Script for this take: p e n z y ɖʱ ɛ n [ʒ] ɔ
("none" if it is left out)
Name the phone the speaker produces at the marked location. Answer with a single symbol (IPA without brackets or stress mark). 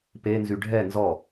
z